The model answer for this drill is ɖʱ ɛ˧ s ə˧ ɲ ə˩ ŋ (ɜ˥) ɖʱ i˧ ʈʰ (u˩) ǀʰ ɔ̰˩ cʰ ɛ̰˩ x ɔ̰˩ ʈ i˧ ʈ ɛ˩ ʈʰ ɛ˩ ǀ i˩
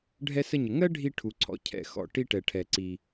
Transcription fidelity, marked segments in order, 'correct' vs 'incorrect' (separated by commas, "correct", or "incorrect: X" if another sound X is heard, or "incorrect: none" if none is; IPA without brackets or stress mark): correct, correct